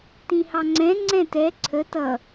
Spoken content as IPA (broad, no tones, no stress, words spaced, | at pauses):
tĩhɑŋ͡ǀɛ̃ ŋ͡ǀɛ̃tɛ ǀʰə tʌ